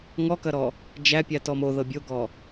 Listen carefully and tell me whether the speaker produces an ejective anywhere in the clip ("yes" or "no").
no